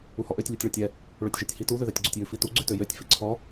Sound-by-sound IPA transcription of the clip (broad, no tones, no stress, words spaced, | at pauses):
uhɔʔøtʲ lʲutʲɭɔtʲɛ | ɭøtʲʒɛtʲhitu ðøðætʲɡ͡ǀutʲjʉ fitu ɡ͡ǀʉtøjøtʲ fiǀʰɔ